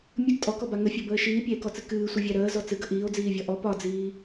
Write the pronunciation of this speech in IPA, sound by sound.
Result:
mʲ ə ɡ tʼ ɔ k ɔ b a ŋ ə fʲ ɒ b əː ʃ iː pʲ æ e̯ k ɔ t͡s ɨ k ɨː sʷ ɨ vʲ æ ɾ əː z ɔ t͡s ɨ ɡ ə ʔ iː o̯ d͡z iː vʲ ɒ ʔ ɔ p ɒ d͡z iː

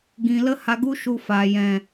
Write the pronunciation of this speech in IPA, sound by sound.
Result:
ɡ ĩ˧ l ə˦ h a˧ ɡ u˦ ʃ u˧ f aː˨ j ɛ̃˨

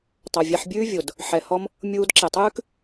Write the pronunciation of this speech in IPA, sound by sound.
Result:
tˤ ɑ˨ vʲ æ˧ ħ bʲ ʉː˦ vʲ o˨ d | ħ ɛ˨ h ɔ˧ m | mʲ uː˧ d ǁ e˨ tˤ ʉː˦ k

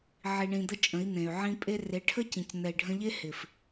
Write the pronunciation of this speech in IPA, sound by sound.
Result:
ʕ i˧ ɳ ĩ˧ d̪ ə˦ t͡ʃʼ ə̃˨˦ i̯ n̪ ẽ˨ y̯ ʕ ĩ˧ pʼ e˧ r e˨˦ ʈʰ ə˦ c ĩ˨ c n̪ ɛ˨ i̯ ɖʱ ə̃˧ ʎ e˦ h ɪ˨ f

